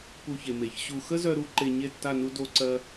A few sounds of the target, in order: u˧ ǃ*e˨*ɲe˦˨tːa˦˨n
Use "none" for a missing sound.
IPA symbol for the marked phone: e˧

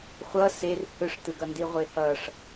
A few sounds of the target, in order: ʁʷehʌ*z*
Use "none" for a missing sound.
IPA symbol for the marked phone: ʂ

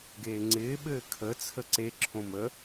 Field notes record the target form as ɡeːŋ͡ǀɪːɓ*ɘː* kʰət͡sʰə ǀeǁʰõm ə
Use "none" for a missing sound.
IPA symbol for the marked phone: ɘː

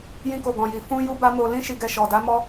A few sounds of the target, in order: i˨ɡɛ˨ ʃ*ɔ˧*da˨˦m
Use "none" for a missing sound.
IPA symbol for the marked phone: ɔ˨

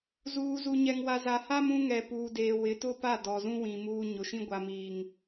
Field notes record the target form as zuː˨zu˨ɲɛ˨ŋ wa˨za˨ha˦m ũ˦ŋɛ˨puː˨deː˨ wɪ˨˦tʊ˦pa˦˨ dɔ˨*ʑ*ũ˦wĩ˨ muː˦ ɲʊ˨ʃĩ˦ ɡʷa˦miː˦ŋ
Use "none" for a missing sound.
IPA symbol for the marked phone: z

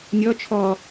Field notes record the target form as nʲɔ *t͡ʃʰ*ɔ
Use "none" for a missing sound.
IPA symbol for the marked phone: t͡ʃʰ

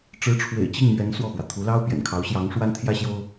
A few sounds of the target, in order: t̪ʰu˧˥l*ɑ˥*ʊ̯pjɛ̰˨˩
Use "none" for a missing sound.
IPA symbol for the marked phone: ɑ˥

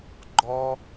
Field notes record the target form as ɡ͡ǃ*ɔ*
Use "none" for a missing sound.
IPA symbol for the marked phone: ɔ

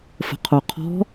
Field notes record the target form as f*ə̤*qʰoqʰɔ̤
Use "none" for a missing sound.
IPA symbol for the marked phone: ə̤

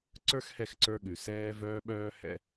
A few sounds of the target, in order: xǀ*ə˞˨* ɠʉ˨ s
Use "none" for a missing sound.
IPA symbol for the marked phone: ə˞˧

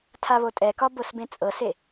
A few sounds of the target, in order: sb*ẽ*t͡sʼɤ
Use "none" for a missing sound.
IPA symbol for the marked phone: ẽ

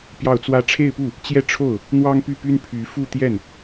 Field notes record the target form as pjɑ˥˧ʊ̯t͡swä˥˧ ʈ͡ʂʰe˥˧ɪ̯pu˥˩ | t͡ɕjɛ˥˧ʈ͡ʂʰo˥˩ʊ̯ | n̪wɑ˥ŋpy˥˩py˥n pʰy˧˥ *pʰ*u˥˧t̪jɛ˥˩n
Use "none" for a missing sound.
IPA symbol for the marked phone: f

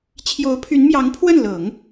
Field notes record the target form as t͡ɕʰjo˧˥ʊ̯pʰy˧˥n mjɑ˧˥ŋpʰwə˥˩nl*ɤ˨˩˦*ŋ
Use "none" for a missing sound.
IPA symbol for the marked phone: ɤ˨˩˦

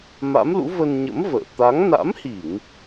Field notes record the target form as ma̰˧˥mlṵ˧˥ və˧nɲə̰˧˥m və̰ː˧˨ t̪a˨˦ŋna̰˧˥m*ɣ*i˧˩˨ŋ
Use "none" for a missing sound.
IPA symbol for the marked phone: h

